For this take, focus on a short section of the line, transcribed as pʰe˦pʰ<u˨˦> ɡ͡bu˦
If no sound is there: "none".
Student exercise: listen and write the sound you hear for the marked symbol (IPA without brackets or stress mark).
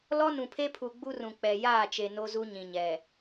u˨